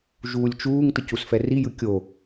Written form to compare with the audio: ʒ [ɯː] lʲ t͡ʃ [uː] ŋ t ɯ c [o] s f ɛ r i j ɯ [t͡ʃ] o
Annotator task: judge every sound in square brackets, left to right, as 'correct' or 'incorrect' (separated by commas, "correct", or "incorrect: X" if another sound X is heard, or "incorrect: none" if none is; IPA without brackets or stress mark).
incorrect: uː, correct, incorrect: u, incorrect: kʲ